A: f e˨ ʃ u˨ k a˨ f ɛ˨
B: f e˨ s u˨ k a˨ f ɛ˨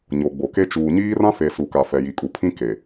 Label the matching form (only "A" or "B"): B